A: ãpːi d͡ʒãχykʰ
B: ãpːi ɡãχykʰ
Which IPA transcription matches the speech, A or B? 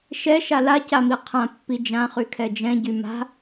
A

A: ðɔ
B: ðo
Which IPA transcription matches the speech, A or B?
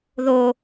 B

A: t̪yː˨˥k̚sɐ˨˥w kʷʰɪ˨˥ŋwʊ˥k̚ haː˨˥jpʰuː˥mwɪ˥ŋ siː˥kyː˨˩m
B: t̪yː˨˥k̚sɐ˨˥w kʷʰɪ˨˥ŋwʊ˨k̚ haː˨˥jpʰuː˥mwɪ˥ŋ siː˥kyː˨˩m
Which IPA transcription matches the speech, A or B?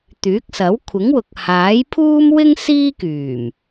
B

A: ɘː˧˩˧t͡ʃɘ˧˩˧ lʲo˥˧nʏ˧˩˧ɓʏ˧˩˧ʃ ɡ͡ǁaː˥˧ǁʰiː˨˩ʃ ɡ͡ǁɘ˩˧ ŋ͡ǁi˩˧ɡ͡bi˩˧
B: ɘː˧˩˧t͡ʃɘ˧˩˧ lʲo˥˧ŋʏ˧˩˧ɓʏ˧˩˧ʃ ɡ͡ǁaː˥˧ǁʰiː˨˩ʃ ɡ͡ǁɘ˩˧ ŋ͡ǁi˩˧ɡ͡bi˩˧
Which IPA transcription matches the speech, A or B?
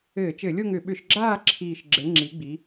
B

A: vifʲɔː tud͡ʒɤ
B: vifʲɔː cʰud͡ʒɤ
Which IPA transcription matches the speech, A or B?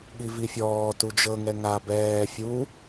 A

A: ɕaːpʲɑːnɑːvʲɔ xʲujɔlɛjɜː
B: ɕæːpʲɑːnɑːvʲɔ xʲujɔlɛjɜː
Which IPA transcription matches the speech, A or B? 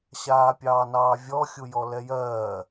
A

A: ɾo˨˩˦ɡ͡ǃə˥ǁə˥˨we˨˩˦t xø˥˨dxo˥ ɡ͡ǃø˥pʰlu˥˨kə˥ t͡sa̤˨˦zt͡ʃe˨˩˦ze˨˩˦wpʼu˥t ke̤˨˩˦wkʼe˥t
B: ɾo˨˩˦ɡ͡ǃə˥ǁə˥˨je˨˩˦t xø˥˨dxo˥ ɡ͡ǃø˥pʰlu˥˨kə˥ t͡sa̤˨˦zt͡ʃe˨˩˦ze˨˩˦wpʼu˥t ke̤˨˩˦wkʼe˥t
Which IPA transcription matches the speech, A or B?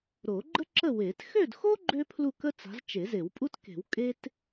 A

